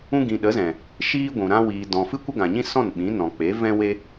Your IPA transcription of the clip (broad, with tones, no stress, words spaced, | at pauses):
ũ˧ɡĩ˨ ɗə˨˦zɛ̃˨ | ʃiː˦ɡʷũ˨ ɾã˧wiː˨ dɔ̃˨ fɨ˦kʷə˦ɡã˨ɲĩ˦ sɔ̃˦˨nɓĩ˨˦ nɔ̃˨k͡pe˨˦vɛ̃˦we˦